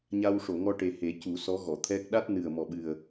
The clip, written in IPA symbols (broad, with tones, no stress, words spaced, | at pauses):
ɲa˧wʂo˨˩˨ŋɔ˧ʈe˨˩ he˨˩˦cu˨˩˦ sɔ˧˥ɣɔ˨˩˨t̪ʰɛ˦˥k̚ ɗa˦˥t̚nɨ˨˩ə̯ mɔ˨˩ɓɨ˨˩ə̯